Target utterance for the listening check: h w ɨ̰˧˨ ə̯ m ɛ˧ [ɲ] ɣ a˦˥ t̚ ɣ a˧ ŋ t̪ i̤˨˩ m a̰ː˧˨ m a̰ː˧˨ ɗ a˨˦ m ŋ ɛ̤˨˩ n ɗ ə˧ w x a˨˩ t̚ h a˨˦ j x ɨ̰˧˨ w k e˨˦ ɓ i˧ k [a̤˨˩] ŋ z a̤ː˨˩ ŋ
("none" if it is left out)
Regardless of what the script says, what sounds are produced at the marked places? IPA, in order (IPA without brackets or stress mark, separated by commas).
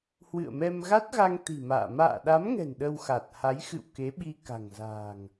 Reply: m, a̤˨˩